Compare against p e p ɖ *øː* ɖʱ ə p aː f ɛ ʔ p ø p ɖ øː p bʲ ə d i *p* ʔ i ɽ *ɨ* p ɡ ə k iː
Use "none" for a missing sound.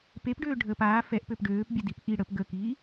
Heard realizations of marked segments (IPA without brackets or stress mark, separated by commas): øː, p, ə